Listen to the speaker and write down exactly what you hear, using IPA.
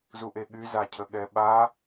z u ʔ e ɠ y z a cʰ ə ɠ ɛ ɓ a

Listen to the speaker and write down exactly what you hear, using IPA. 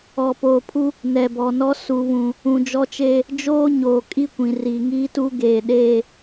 ɔ˨ p oː˨ pʰ u˦ | n ɛ˨ b ɔ˨ n ɔ˦ s u˨ β ũ˨ | ũ˨ d͡ʒ ɔ˦ t͡ʃ eː˦ | d͡ʒ oː˦ ɲ oː˨ kʼ i˦˨ kʷ ĩ˨ r iː˨ ŋ iː˦ t u˦ ɡ eː˨ ɗ eː˦˨

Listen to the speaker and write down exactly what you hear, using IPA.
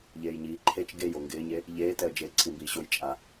ʎ eː j ɲ iː ǃʰ e t͡ʃ ɡ e j o ŋ ɡ ɪː ɲ e | ʎ eː t ɛ ə̯ d͡ʒ e ǀʰ i m b iː ɕ o j t͡ʃʼ a

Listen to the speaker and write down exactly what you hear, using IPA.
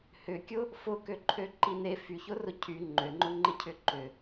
h ʏ kʲ ʊ | f ʊ k ø ǃʰ ø ǃ i n e f y ç ʊ r ʊ cʰ y ŋ͡ǃ ø ŋ͡ǃ ʊ ŋ͡ǃ ɪ cʰ ʏ ǃ ʏ

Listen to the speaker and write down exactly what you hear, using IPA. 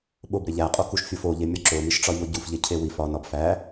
ɓ o b ɾ e ʎ æ qʼ o k u ʃ fʲ o f o ʎ e mʲ ɒ ǁ o m i ʃ ʈ͡ʂ ɒ ʎ o ɟ u f ʎ e cʰ e w i f ɒ n ɒ b f æ

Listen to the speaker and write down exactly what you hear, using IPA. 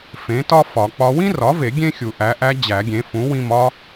f ẽ˩˥ t ɒ˥ f ɒ˨˩˦ k͡p ɒ˧˥ w ĩ˥ r ɒ˩˥ v e˨˩˦ ɡʲ ẽ˥ xʲ u˨˩˦ ʔ æ˩˥ ʔ æ˧˥ d͡ʑ æ˨˩˦ ɡʲ ẽ˩˥ f ũ˩˥ w ĩ˦˨ m ɒ˥

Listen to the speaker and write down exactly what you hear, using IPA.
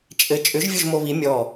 t͡ʃʼ ɘ t͡ʃʼ ʏ ʒ vʲ o ʒ m o β i mʲ ɔ

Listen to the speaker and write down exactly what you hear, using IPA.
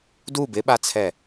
d u b ɪ ɓ a t͡sʰ ɛ

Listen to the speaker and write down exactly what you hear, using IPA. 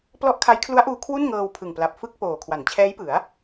p l ɔ˦˥ ʔ kʰ a˦˥ j kʰ l u˦˥ a̯ ʔ uː˧ kʰ w u˥˩ n ŋ ɤː˧ w pʰ ɯ˨˩ ŋ p l a˨˩ p̚ f ɯ˥˩ k̚ p oː˨˩ kʰ w a˩˦ n t͡ɕʰ ɛː˦˥ j p ɯ˩˦ a̯

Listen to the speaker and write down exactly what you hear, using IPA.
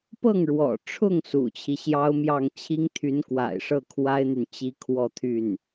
p ɤ˥˩ ŋ ɻ w ɔ̰˨˩ ʈ͡ʂʰ ʊ˥˩ ŋ s ṵ˨˩ t͡ɕʰ i˦ ɕ j ɑ˥ ʊ̯ m j ɑ˥˩ ŋ t͡ɕʰ i˥ ŋ t̪ʰ y˧˥ n k w a̰˨˩ ɪ̯ ʂ ɤ˥˩ kʰ w a˥ ɪ̯ n̪ y˨ n t͡ɕ i˧˥ kʰ w ɔ˥˧ t̪ʰ y˥˩ n

